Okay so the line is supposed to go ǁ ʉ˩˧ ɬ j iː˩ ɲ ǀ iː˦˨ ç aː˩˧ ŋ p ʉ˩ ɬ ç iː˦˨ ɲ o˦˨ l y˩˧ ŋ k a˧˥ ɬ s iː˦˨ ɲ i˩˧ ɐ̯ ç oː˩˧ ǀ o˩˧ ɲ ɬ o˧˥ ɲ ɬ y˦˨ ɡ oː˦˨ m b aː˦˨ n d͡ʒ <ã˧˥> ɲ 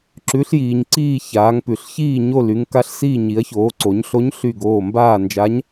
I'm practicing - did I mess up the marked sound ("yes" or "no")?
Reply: yes